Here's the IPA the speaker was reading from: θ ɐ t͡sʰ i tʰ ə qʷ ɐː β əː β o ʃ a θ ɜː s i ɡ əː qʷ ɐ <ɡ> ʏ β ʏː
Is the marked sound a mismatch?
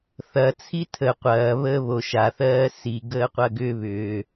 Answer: no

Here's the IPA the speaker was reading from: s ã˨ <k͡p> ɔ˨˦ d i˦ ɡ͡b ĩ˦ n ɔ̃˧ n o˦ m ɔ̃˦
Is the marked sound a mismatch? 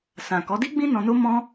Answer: yes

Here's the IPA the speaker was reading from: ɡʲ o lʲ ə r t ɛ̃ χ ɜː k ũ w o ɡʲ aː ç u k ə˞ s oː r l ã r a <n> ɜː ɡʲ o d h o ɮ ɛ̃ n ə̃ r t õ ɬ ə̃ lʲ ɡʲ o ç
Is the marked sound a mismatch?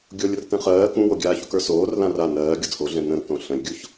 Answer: no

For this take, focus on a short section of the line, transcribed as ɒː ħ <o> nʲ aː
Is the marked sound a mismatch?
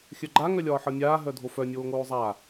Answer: yes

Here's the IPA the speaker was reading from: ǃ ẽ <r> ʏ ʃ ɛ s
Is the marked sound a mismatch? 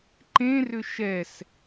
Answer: no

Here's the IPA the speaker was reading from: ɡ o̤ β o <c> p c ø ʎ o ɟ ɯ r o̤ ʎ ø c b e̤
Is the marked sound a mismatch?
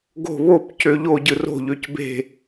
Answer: yes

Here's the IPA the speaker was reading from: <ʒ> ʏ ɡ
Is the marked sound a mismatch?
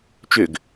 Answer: yes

